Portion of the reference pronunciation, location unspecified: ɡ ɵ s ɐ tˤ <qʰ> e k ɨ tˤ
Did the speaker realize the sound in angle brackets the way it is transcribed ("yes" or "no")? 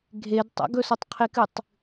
yes